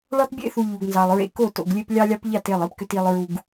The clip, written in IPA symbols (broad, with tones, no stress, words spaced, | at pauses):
ɭɑ˦tbʲḛ˦θu˨ ʎu˨ɡnzɑ˨lˠɹḛ˦ ko˦˨to̰˨ɡlʲe˦p lʲɑ˦lʲɑ˦pʎɑ˦˨t e˦˨lˠi˦pkʏ˦t i˦lˠɹu˦ɡ